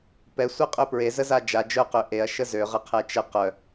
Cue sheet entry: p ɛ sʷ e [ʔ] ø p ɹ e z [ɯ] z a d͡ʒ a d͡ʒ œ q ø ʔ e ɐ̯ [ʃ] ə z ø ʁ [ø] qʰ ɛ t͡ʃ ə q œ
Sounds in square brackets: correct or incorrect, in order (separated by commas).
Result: incorrect, incorrect, correct, incorrect